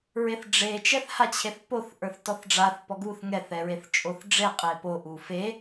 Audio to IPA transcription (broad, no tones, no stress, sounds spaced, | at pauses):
ɹ e θ ɖ͡ʐ e t͡ʃ ɛ θ h a t͡ɕʰ e θ p o θ ʔ ə˞ θ t ɔ θ ɖ͡ʐ a θ p ɔ ɡ u θ ŋ ɛ θ ɛ ɹ e θ t͡ʃʼ o θ ɖ͡ʐ e qʼ e p o ʔ u f e